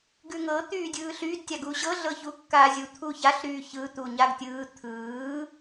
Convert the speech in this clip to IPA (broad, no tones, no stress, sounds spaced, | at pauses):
ɡ ʉ ŋ ɤ t̪ yː dʲ ɯː ɬ y d tʲ a ɡ u ɕ ɤ ɮ ɤ ç u kː aː zʲ u t̪ʰ u ç a ɬ ɾ yː ç ɯ t̪ u ɲ a ɡ tʲ ɯː t̪ʰ ɯː